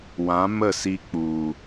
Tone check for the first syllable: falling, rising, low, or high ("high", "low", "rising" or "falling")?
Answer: rising